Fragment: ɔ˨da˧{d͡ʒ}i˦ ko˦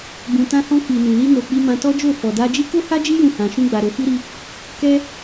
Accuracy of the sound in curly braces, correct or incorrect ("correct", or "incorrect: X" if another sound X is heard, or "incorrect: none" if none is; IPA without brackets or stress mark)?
correct